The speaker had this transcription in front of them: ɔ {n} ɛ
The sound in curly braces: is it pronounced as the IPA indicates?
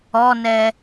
yes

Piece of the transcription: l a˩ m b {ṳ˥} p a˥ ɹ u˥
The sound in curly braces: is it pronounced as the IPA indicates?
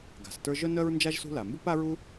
no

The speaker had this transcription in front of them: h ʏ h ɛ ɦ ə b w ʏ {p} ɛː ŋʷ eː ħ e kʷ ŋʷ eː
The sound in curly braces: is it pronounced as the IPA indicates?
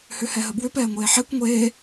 yes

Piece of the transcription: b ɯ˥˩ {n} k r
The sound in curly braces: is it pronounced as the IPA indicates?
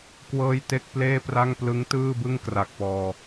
no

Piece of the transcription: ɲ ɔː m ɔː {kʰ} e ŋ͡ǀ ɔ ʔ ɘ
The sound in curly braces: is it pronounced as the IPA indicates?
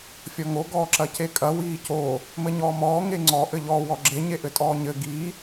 no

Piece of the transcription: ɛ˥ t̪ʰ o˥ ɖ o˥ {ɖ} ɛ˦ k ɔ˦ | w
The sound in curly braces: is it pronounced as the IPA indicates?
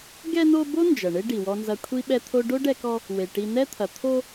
yes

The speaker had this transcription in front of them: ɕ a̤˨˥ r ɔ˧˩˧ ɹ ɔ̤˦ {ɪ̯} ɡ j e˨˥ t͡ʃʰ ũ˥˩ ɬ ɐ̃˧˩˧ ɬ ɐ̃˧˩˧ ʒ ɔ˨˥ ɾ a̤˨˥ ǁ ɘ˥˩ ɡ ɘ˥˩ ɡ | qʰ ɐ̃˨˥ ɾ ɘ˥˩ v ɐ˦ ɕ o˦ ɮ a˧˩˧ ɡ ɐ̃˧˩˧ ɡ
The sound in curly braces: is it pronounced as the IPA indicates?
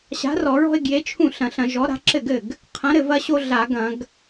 yes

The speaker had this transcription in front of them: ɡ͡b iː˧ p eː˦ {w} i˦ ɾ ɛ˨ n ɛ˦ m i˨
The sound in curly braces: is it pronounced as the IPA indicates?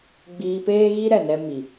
no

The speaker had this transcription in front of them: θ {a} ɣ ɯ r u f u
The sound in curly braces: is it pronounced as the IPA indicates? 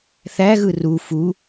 no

